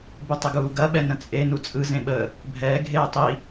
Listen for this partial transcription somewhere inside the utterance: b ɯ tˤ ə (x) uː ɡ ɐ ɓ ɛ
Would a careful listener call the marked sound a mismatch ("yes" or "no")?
yes